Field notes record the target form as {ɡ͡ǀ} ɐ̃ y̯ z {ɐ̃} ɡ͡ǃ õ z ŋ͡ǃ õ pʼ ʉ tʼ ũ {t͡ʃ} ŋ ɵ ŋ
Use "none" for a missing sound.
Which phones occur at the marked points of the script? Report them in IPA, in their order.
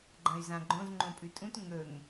ɡ͡ǃ, ã, t

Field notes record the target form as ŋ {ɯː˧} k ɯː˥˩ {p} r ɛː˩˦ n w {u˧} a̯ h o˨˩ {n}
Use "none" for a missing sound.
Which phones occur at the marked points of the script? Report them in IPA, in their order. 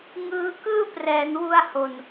ɯː˧, p, u˧, n

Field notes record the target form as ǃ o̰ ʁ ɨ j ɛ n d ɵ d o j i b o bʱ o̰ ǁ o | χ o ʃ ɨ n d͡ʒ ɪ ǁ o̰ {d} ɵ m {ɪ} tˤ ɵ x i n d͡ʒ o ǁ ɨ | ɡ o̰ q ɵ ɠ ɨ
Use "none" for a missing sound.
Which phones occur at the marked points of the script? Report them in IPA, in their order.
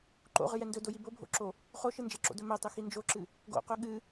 d, ɛ

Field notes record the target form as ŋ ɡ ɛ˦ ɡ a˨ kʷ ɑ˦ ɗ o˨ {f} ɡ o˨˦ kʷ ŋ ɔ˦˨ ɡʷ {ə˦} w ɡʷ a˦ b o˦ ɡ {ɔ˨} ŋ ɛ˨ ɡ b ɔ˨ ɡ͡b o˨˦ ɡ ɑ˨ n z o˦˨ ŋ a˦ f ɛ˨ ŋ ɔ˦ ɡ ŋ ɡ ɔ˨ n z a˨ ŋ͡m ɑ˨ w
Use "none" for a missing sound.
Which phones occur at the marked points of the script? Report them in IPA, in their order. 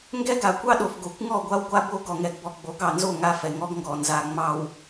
f, a˦, ɔ˨

